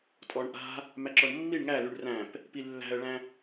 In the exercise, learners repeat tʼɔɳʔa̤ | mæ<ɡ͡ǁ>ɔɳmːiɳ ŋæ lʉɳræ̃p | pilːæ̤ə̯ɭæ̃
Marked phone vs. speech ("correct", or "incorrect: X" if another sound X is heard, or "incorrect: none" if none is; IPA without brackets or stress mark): incorrect: ǁ